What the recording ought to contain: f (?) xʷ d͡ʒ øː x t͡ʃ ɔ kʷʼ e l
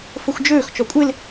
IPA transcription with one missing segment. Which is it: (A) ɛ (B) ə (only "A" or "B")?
B